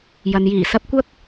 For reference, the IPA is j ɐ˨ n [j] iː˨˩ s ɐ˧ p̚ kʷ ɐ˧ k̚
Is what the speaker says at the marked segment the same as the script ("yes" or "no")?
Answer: yes